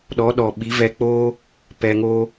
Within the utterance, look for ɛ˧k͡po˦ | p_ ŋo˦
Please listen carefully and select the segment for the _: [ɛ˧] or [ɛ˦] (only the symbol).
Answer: ɛ˧